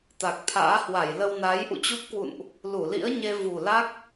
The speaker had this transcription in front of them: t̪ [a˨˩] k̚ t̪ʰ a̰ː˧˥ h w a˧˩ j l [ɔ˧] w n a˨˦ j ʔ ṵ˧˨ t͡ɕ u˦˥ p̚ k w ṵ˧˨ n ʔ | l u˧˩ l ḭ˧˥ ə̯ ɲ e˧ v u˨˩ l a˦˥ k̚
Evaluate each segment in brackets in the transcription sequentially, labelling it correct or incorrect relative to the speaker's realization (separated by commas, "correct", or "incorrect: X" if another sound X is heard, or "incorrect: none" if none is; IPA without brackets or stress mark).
correct, incorrect: ə˧